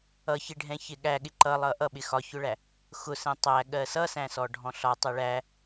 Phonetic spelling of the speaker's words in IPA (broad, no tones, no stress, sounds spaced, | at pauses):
ʌ ç ɪ ɖʱ ɛ̃ ç ɪ ɠ æ ɠ ɪ ǃ ʌ lˠ ʌ ʔ ʌ ɓ ɪ x ɒ ç ʊ ɭ æ | x ʊ s ɛ̃ tˤ æ ɠ ɜ s ʌ s æ̃ s ɔ ɖʱ ɔ̃ ɬ ɒ tˤ ɛ ɭ æ